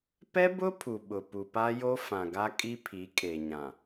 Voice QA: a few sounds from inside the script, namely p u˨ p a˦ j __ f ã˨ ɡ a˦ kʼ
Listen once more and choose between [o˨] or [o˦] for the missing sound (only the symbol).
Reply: o˦